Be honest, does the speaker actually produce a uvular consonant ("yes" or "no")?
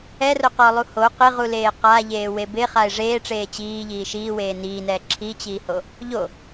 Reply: yes